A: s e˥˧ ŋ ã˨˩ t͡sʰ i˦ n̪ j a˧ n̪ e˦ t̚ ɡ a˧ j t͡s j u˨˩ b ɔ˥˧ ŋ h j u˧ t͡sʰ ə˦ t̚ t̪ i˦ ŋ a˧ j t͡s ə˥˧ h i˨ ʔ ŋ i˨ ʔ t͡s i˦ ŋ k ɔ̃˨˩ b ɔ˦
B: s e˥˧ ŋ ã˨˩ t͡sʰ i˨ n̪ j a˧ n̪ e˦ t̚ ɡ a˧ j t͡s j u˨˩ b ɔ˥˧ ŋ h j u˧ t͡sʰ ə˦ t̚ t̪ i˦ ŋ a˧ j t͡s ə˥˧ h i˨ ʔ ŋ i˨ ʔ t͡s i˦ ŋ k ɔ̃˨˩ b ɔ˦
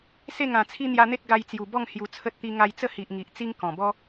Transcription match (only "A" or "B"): A